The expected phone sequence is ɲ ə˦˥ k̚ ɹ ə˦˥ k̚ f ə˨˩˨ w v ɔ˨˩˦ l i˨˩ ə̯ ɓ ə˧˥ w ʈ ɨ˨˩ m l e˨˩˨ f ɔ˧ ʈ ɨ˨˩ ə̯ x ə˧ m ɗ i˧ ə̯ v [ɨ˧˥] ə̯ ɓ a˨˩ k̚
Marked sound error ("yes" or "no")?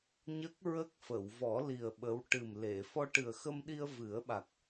yes